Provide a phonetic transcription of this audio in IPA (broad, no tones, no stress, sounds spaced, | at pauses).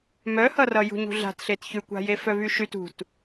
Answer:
m œ h ʌ r ʌ j ṳ ɲ ṳ ɮ a̤ t ɬ e t ç ʉ kʷ a̤ j e f œ v y ʃ y t ṳ t